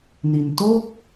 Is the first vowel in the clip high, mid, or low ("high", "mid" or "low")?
high